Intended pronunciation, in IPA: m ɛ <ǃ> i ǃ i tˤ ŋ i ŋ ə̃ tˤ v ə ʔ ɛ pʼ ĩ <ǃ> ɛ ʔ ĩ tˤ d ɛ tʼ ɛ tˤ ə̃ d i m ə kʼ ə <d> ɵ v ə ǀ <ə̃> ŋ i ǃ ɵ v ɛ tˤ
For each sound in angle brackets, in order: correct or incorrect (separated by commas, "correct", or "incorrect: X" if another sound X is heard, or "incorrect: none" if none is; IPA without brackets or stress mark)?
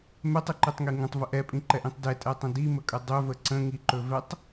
incorrect: tˤ, correct, incorrect: dˤ, correct